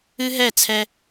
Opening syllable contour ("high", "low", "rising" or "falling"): high